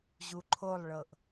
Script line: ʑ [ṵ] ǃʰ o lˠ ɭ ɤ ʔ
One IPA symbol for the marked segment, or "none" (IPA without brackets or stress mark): u